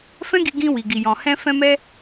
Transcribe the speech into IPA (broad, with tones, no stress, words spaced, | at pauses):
fɛ̃˦ɡi˧ɡĩ˧ wi˨ɡi˨jɔ̃˨ hɛ̃˧fɛ̃˧mɛ˧